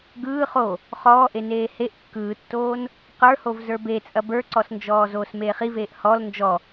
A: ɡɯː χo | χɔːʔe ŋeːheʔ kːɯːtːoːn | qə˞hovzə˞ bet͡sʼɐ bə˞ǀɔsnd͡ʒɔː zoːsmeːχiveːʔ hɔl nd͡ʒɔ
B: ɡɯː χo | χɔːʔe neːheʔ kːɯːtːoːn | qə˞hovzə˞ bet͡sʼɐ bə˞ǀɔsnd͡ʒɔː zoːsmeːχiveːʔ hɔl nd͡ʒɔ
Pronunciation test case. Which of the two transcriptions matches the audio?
B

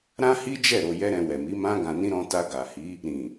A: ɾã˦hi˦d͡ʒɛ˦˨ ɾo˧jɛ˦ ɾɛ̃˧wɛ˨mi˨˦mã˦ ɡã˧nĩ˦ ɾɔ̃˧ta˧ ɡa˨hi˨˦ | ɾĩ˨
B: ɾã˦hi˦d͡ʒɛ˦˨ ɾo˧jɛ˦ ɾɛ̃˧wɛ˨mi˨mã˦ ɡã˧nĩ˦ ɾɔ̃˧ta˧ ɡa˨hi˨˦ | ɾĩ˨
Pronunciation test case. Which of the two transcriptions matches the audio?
A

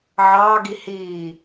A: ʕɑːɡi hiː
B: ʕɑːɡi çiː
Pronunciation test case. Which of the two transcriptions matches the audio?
A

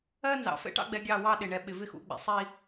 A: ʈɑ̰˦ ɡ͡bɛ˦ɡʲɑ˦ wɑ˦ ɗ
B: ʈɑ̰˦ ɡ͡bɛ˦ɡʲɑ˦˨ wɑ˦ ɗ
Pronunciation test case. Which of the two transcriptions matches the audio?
B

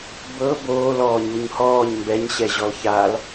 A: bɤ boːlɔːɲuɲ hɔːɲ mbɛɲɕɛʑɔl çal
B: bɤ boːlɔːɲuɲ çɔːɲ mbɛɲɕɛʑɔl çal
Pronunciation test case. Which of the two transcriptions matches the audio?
A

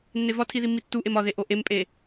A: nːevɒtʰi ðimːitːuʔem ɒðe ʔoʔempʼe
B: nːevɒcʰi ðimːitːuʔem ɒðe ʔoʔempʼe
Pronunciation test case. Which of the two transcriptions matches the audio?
A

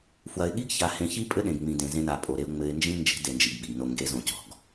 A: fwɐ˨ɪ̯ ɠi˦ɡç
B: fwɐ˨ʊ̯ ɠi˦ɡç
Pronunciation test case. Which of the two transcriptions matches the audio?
A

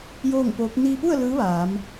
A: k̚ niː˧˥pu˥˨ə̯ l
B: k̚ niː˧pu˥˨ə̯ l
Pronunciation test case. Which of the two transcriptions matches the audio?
B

